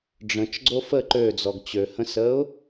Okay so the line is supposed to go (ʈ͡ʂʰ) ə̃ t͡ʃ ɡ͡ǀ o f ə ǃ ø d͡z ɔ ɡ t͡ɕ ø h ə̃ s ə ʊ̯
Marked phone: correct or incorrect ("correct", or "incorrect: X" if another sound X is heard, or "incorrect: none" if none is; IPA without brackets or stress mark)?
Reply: incorrect: ɖ͡ʐ